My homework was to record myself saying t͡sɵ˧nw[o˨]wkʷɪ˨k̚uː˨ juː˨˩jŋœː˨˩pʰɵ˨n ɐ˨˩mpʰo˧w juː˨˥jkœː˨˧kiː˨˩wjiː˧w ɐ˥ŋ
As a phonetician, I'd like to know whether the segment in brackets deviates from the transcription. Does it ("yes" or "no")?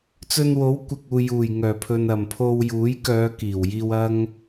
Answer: yes